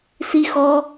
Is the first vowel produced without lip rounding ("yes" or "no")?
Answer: yes